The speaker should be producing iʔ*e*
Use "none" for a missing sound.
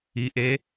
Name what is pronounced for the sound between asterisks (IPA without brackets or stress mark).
e